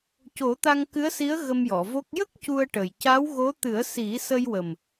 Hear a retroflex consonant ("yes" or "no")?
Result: yes